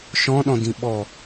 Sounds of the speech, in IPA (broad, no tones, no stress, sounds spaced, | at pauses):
ʃ ɔ̃ ɗ ɔ̃ d ĩ ɓ ɔ